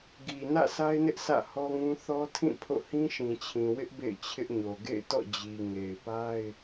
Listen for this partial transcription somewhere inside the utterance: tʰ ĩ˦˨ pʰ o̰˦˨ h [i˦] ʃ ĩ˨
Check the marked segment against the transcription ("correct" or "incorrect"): incorrect